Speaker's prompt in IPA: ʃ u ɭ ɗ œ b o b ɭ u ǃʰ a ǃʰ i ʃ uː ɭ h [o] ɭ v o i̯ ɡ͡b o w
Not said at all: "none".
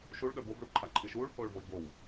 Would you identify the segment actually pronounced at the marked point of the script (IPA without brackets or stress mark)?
oː